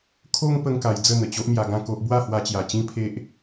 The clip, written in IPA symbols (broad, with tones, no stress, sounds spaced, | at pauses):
kʰ o˦ ŋ p ə˦ ŋ k a˧ j d͡z ə˥˧ n̪ ə˨˩ t͡ɕ o˦ ʔ m j a˧ ɡ ã˥˧ k o˦ ʔ b w a˥˧ h w a˧ t͡ɕ j a˨˩ t͡ɕ ĩ˦ pʰ e˦ ʔ